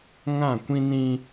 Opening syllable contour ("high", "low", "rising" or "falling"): falling